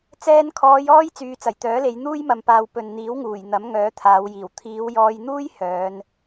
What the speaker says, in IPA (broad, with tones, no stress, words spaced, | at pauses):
t͡sɛː˧nkʰɔː˨˧j ɔː˥j t͡syː˨t͡sɐ˨˩jt̪œː˨˥le˨˧j n̪uː˥jmɐ˨mpaː˨w pɵ˨n n̪iː˨˥wŋuː˨˩j n̪ɐ˨˥mŋœː˨˥t̪ʰaː˨˧wjiː˨˩w t̪ʰiː˨˧wjɔː˧jn̪uː˥j hœː˨˧n